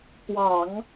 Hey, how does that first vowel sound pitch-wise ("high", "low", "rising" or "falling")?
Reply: low